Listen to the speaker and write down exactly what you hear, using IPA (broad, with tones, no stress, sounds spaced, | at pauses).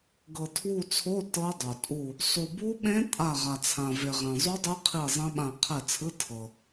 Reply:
ɡ ɤ˨ tʰ w u˦˨ t͡sʰ o˧˥˧ t ɤ˦˥ dˤ o˨ tʼ u˦˨ | sˤ u˨ b u˦˥ ɓ ẽ˦˥ tʼ a˦˨ ʁ a˨ t͡sʰ ã˨ v e˨ ʁ ẽ˨ zˤ u˦˥ dˤ ɯ˦˥ qʰ i˦˨ zˤ ẽ˦˥ ɓ ã˦˨ qʰ ɛ˦˨ t͡sʰ ɯ˧˥˧ tʰ ɤ˨